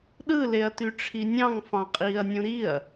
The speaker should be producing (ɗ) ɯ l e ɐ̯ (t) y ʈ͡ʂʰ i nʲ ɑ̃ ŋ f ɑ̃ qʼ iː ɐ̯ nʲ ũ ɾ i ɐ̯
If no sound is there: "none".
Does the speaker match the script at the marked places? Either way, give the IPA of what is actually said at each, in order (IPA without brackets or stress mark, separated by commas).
ɗ, t